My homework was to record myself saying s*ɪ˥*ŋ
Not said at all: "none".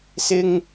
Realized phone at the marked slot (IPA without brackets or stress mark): ɪ˥